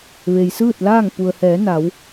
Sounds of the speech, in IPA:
ʋ e˩ j s ɯː˥˨ t̚ l aː˥˨ ŋ p u˩ ə̯ h ɛː˩˧ n a˩˧ w

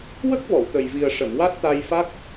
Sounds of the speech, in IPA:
w ə˦˥ k̚ v ɔ˨˩˨ w t̪ ə˨˩ j v i˨˩ ə̯ ʂ ə˨˩˨ m w a˦˥ t̚ t̪ a˧ j f a˦˥ k̚

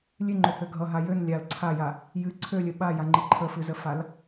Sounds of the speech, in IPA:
lʲ ɨ ŋ͡ǃ ø h ø ɡʱ ʌ ɦ a j ø n lʲ a l ǀʰ a j a | j ɨ ǀʰ ø lʲ ə ɓ a j a ŋ͡ǃ ɨ ǃʰ ə f ɨ z ə f a l

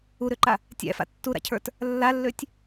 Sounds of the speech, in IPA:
u ɾ ʏ ǃ a | tʲ æ̰ f a̰ tː u ɾ a̰ cʰ ə˞ t | lː a lː ø tʲ

